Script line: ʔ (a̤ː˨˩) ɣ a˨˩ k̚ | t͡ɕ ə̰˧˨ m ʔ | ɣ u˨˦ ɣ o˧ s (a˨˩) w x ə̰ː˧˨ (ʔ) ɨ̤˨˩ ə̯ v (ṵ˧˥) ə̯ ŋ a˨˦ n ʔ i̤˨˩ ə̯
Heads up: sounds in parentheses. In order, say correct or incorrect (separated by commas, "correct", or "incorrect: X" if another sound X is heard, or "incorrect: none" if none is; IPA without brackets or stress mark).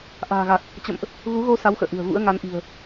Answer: correct, incorrect: a˨˦, correct, correct